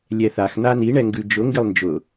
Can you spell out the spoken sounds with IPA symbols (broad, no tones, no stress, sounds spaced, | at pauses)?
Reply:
lʲ ɛ θ a x n̪ a n i ɳ ɛ ŋ ɡ ʉ d͡ʒ ʊ ŋ ɡ ɪ lˠ n d͡ʒ ʊ